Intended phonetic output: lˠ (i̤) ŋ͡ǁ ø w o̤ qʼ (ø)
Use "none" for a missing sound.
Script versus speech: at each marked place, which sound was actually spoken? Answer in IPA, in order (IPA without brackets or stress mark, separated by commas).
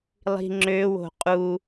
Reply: i̤, u